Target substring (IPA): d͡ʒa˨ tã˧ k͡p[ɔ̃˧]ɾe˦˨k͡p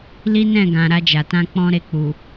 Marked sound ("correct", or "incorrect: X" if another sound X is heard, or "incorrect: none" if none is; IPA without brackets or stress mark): incorrect: ɔ̃˦